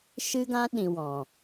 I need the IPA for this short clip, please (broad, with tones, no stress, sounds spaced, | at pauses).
ʃ ɨ˦ ɡ ã˦ ɗ ĩ˨ w ɔ̃˨